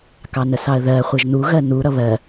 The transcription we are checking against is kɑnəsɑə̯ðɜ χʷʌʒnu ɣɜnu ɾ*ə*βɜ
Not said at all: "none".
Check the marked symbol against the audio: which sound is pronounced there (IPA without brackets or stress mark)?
ʌ